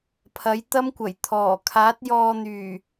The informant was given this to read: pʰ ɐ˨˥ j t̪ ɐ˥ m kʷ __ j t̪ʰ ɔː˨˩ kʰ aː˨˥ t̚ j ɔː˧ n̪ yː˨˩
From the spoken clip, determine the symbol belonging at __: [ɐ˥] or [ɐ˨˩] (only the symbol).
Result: ɐ˨˩